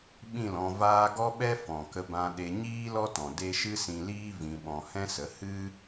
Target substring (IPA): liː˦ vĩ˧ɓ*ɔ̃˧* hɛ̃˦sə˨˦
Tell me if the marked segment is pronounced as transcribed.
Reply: yes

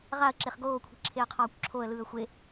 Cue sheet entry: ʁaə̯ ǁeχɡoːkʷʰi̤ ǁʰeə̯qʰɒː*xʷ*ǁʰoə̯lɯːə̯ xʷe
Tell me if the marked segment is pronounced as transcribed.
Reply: no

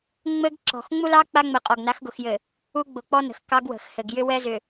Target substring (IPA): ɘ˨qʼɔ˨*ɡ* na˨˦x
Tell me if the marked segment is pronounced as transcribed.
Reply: yes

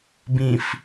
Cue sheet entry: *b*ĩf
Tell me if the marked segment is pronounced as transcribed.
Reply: yes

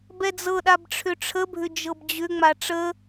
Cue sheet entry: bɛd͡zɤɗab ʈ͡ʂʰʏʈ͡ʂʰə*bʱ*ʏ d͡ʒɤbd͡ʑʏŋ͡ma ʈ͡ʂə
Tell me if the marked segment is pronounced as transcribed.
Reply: yes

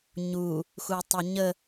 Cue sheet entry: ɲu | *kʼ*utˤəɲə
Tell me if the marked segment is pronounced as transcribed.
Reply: no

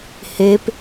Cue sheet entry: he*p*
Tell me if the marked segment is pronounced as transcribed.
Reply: yes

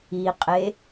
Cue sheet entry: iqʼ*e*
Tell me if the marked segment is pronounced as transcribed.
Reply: yes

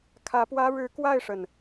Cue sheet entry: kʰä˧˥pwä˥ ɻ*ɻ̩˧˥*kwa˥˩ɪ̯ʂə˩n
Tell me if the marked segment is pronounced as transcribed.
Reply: yes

